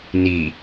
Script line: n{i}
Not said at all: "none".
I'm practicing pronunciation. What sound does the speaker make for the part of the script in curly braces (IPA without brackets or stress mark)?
i